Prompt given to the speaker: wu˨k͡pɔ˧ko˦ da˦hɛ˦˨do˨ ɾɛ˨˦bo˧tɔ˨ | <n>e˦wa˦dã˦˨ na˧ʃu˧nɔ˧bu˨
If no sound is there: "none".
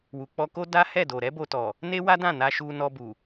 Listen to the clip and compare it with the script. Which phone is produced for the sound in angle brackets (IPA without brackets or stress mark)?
n